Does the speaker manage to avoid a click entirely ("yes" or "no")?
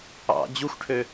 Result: yes